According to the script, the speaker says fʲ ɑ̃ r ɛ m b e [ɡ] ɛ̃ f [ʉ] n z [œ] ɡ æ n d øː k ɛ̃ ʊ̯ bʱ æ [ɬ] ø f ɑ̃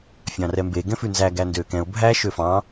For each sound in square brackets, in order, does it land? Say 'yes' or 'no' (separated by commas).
yes, yes, no, no